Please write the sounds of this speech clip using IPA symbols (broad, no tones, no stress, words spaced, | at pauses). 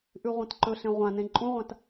ʔʉʁʷẽtǃɵɬẽ ʁʷãnẽ ǃʼũʁʷãt